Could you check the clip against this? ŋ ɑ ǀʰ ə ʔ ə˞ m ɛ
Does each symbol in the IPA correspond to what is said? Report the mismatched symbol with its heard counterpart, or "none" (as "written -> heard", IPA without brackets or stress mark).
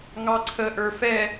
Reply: m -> f